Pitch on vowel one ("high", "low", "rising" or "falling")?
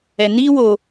low